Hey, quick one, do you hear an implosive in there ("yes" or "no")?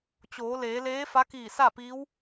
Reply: no